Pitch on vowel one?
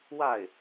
falling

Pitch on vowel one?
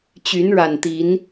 rising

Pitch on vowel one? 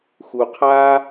low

